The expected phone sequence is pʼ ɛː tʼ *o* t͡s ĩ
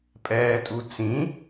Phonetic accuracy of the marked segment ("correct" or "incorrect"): incorrect